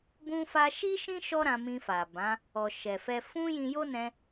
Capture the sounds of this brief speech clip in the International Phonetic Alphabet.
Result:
b ũ˧ f a˧ ʃ i˦ ʃ ĩ˦ ʃ ɔ˦ ɾ ã˧ m ĩ˧ f a˨ b ã˨˦ | ɔ˨ ʃ ɛ˨ f ɛ˧ f ũ˦ j ĩ˧ j o˦ n ɛ̃˧

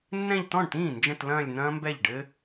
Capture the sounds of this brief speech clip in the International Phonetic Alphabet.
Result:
nː ɛ̃˥˧ ʎ t ɔ̃˥˩ ɳ t ĩː˥˩ n d͡ʒ ə̃˥˧ t l ɐ̃ː˥˧ lʲ n̪ ɐ̃ː˦˥ m b ɛ˥˩ ʎ ɖ ɘ˦˥

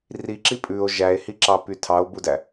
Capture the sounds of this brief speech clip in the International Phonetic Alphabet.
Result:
r i ǁ i pʼ ʉ o̯ ʒ æ e̯ h i ǁ ɑ p y tʰ ɑ o̯ b u d æ

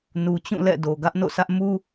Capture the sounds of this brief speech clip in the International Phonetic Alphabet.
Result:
n u˨ t͡ɕ ũ˦˨ l ɛ̰˦˨ d o˨ ɡ ä˦ ʔ n o̰˦˨ s ä˦ ʔ m u˦

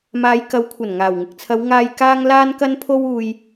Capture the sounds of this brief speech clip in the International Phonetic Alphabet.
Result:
m aː˨˧ j k ɐ˨˥ w kʷʰ ɐ˨˩ n ŋ aː˨˩ w ŋ ɪ˨ k̚ t͡sʰ ɐ˨˧ w ŋ aː˨ j k aː˧ ŋ l aː˧ n k ɐ˧ n pʰ o˧ w uː˨ j

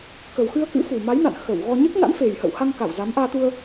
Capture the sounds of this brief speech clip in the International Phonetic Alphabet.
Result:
k ə˨˩ w x ɨ˧ ə̯ k ɨ̰˧˥ f u˨˩ m a˨˦ j n a̰˧˨ n x ə˧˩ w ɣ ɔ˧ ɲ ɨ˦˥ k̚ n a̰˧˥ n f e˨˩ j h ə̰˧˨ w h a˧ ŋ k a˧˩ w z a˨˦ m ʔ aː˧ t̪ u˧ ə̯

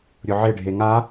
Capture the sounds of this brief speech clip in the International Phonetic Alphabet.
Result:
ɾʲ ʊ ʕ ɪ ɖʱ e ŋ a

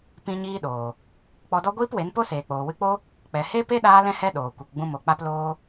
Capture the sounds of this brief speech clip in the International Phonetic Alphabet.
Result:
p ĩ˦ ɲ iː˦ ɗ oː˨ | k͡p ɔ˧ d ɔ˦ ɡʷ iː˦ p w e˨˦ n p o˦ s eː˨ k͡p oː˨ w ɨ˧ k͡p o˦ | k͡p ɛ˨ h e˦ p e˦ ɗ aː˧ l ɛ̃˧ h ɛ˧ ɗ oː˨ kʷ e˧ k ɡ͡b ũ˦ m o˧ k͡p a˦ p l oː˦

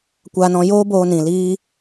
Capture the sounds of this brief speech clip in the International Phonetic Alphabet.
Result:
kʷ aː˧ n ɔ̃˧ j oː˦ b oː˧ n ĩ˨ l iː˦

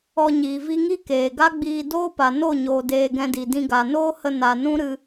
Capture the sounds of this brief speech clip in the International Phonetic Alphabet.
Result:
ɔ˧ ɲ iː˨ v i˦ ŋ i˦ k eː˨ ɡ a˦ ɡ͡b iː˧ d oː˦ p a˨ n o˦˨ ɲ oː˨ d eː˧ ɡ ɛ̃˧ d i˨ d ĩ˧ ɡ a˨ n oː˦ h ə˧ n a˨ n ũ˦ ɾ ɨ˧

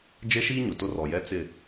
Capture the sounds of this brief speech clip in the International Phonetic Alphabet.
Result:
d͡ʒ e˦ ʃ iː˦ ɲ ʊ˨ t ʊ˦ r ɔ˨ j ɛ˦ t͡s ɪ˦˨

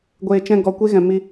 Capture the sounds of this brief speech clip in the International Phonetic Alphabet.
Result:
ɡʷ eː˨ t͡ʃ ɛ̃˧ ɡ ɔ˨ kʷ e˦ ɣ ɛ̃˨ m i˧

